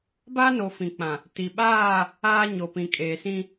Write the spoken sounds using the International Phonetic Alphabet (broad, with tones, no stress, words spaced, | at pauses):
baː˦no˨ fĩ˨k͡pã˨ | ti˨ɓaː˦˨ | aː˦ ɲo˨pĩ˨kʼeː˨sĩ˦